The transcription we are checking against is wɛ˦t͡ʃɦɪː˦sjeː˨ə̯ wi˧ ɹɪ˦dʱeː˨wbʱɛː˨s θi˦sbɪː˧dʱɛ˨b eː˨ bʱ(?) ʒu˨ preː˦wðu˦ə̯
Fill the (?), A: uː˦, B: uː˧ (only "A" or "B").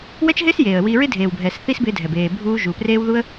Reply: B